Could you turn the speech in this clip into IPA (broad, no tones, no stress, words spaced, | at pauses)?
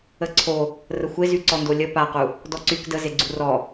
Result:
əǀʰo | rəxʷezy ǀɔndolʲə paqu | dɔǀyk də zeɡ͡ǀurɔ